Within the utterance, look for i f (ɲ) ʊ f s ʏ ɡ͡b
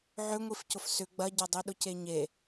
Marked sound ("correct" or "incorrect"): incorrect